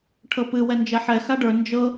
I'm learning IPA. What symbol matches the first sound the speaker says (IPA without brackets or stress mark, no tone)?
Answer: ʈʰ